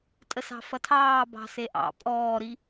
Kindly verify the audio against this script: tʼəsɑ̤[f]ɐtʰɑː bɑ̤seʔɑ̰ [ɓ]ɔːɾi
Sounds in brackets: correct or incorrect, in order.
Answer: correct, incorrect

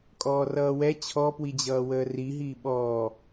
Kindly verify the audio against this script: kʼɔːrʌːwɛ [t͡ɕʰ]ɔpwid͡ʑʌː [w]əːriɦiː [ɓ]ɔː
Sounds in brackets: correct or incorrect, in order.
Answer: correct, correct, correct

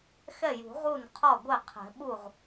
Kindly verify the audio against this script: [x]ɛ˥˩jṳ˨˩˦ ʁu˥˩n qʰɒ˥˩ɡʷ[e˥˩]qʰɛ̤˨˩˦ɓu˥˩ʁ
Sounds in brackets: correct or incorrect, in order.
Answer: correct, correct

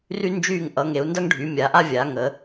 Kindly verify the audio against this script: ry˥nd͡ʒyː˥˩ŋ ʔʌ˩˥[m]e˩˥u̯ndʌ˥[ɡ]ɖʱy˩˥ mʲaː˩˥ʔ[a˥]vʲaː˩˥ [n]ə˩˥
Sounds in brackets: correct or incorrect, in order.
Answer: incorrect, incorrect, correct, incorrect

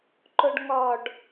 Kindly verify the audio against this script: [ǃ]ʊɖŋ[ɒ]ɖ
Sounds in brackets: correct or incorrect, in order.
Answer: correct, correct

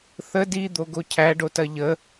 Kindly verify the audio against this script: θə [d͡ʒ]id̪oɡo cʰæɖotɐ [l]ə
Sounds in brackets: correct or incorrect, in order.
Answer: incorrect, incorrect

